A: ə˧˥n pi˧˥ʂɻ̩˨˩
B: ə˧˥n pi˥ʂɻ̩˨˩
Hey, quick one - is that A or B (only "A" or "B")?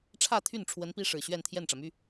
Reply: B